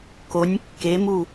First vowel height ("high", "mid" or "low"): mid